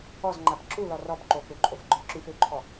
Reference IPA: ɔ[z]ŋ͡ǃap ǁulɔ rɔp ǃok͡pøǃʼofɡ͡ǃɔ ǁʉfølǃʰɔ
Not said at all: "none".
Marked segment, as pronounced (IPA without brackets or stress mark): z